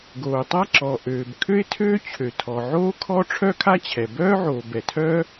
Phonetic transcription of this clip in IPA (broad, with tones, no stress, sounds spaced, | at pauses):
ɡ oː˩ tˤ a˥ ǁ ɔ˩ ʔ øː˩ b kʰ ø˥ ɪ̯ tʰ øː˥ t͡ɕʰ ø˩ tʰ ɔ˩ ʕ oː˥ kʰ ɔ˥ ʈ͡ʂʰ œ˥ kʰ a˥ t͡ɕʰ ɛ˩ b œː˥ ʕ oː˩ b ɛ˩ tʰ œ˥